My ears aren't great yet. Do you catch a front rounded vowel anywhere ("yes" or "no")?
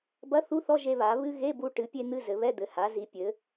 no